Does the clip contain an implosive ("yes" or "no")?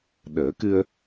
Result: yes